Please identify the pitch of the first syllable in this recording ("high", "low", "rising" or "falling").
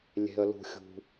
low